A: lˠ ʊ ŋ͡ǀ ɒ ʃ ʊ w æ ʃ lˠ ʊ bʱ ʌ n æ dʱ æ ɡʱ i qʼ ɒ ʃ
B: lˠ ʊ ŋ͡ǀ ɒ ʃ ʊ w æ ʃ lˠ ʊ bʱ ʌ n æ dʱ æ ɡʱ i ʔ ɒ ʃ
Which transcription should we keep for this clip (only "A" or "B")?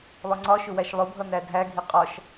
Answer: A